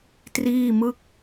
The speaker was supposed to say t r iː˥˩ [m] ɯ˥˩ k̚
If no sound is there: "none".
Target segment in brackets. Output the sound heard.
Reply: m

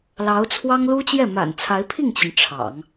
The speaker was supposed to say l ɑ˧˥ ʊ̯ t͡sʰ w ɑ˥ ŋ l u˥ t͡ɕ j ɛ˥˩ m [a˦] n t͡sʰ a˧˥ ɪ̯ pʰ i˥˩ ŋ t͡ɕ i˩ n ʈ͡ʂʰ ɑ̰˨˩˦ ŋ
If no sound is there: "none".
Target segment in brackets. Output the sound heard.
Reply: a̰˨˩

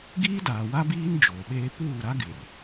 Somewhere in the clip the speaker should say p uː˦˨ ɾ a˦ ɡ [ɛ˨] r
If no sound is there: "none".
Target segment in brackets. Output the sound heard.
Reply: ɪ˨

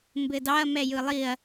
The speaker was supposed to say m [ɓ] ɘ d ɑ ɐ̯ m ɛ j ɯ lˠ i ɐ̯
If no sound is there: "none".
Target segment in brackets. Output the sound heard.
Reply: b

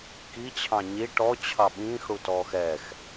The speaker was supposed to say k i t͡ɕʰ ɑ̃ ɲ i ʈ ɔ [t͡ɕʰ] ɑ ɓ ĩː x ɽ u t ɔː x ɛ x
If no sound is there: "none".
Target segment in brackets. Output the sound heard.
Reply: t͡ɕʰ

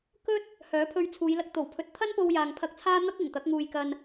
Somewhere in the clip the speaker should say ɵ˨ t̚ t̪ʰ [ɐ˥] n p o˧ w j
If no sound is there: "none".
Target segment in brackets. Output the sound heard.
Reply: ɐ˥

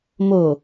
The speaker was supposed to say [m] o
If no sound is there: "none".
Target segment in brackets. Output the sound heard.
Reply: m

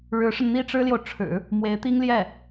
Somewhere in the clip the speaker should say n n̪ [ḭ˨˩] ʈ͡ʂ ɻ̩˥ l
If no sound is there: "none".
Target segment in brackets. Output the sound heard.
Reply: i˥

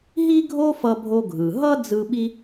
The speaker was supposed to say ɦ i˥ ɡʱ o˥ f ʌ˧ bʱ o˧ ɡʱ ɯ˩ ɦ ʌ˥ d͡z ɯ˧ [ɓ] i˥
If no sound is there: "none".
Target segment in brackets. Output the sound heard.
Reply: ɓ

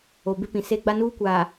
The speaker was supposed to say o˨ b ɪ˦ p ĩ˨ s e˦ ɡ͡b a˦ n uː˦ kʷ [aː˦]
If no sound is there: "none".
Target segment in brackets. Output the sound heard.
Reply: aː˨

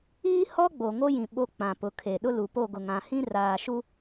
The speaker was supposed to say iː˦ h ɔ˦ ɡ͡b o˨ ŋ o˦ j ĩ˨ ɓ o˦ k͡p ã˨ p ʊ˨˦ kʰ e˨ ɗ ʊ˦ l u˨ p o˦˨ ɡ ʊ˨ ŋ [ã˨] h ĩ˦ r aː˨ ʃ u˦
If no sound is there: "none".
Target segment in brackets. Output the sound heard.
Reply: ã˨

